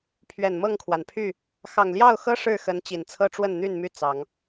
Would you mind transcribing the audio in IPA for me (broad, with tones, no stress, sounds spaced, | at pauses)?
pʰ ɥ ɛ˨˩ n m ɤ˥˨ ŋ kʰ w a˩ n pʰ y˥˨ | x ɑ˨˩ ŋ l j ɑ˥˨ ʊ̯ x ɤ˦ ʂ ɻ̩˥˨ x ə˨˦ n t͡ɕ i˨˩ n t͡sʰ ɤ˦ ʈ͡ʂ w ə˥˨ n n̪ y˥˨ n m y˥˨ t͡s ɑ˨˦ ŋ